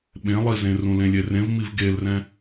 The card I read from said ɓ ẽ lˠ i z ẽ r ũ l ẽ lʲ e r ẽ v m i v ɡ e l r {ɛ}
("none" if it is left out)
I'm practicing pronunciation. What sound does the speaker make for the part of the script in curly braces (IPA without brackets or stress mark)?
ɛ̃